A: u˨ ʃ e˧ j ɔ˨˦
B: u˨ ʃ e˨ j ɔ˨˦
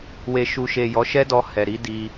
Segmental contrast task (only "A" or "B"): B